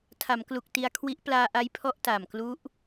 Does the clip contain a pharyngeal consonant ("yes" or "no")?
no